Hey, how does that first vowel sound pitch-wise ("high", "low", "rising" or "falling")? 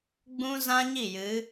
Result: high